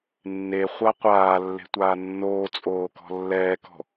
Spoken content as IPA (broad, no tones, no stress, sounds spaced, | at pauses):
nː e χʷ a qʷ aː lː e̤ tʷ aː nː oː t͡sʼ oː k ɔ̤ lː ɛː k ɔ̤